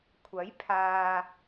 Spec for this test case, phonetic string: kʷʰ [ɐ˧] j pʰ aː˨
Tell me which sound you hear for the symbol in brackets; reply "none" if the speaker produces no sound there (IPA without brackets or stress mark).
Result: ɐ˨˥